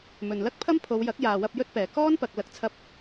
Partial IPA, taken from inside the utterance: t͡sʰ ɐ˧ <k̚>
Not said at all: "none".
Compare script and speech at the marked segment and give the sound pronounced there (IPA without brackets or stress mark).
p̚